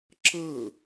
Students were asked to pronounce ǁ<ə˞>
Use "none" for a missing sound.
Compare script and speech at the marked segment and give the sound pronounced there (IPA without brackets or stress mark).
ɤ